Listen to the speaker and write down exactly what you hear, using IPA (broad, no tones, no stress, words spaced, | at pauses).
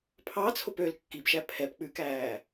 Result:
pʰɑt͡sʰop øl kːibʃæ pʰɛp k͡pʉkæː